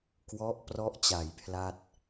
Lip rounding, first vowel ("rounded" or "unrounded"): rounded